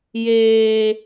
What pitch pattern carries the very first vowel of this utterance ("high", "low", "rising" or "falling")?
high